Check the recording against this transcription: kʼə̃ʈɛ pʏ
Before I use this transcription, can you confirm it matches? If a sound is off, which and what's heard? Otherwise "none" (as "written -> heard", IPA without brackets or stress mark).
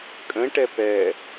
ʏ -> ɛ